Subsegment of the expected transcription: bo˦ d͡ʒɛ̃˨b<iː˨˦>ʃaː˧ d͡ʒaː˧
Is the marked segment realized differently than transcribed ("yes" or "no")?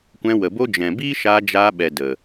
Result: yes